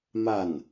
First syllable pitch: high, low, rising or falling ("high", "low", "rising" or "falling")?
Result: falling